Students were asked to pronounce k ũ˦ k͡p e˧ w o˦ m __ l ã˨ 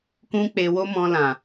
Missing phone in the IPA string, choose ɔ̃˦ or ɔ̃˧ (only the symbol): ɔ̃˧